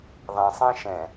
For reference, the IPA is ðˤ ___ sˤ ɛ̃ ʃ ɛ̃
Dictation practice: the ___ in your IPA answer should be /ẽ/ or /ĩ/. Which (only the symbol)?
ẽ